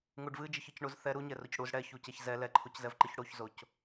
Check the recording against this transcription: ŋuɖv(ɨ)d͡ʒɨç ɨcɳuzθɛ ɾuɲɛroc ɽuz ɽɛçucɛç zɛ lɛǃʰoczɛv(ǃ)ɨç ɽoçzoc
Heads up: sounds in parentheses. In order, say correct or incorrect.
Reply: correct, correct

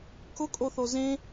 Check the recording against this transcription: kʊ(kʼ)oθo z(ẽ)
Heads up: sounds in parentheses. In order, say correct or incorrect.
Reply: correct, correct

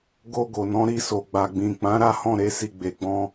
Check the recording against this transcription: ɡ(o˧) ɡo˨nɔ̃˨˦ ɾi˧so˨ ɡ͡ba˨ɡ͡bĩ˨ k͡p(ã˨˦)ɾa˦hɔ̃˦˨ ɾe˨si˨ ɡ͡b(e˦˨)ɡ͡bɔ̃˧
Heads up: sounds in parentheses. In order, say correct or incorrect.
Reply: correct, correct, incorrect: e˨

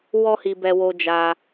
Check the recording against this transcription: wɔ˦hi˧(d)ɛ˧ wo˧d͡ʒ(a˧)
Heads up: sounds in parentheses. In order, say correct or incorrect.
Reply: incorrect: b, correct

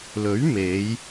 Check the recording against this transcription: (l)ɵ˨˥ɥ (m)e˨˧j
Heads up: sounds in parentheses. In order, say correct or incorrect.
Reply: correct, correct

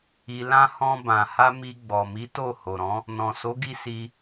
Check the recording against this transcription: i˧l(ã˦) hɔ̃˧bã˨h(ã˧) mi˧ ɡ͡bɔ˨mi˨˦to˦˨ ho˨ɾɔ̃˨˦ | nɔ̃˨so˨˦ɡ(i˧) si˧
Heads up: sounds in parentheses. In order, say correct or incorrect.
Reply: correct, incorrect: a˧, correct

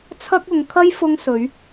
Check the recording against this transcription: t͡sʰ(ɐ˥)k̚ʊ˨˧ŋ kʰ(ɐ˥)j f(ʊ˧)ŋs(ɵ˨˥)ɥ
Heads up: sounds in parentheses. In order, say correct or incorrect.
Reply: correct, correct, incorrect: ʊ˥, correct

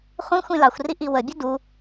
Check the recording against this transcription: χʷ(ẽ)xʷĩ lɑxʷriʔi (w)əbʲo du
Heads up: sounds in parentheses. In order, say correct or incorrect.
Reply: incorrect: ĩ, correct

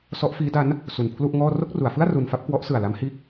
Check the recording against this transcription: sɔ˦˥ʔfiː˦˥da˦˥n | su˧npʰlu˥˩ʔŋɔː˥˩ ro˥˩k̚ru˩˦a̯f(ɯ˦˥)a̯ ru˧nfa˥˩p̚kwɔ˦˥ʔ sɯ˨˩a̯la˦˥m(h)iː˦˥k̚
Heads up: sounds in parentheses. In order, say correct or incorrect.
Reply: incorrect: ɯ˥˩, correct

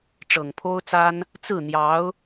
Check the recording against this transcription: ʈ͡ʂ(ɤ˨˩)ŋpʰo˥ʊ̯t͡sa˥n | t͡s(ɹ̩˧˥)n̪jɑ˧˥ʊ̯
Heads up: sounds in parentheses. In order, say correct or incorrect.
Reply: correct, incorrect: ɹ̩˥˩

